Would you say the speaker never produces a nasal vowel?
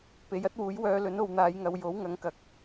yes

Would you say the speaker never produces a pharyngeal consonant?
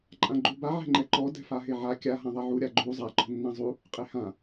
no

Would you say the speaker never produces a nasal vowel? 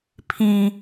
no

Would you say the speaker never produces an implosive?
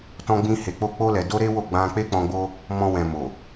yes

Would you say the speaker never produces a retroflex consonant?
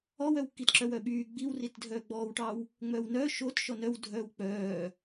no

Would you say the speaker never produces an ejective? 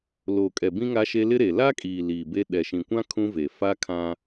no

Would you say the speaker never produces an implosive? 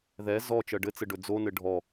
yes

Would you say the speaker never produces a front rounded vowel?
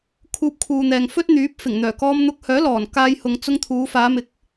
no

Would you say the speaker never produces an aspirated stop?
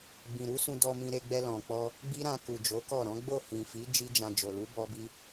yes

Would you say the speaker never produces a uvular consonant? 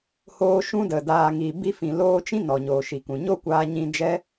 yes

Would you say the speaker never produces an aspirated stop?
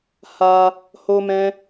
yes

